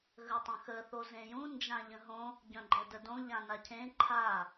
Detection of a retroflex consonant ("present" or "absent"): absent